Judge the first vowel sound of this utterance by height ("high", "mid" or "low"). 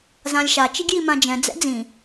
low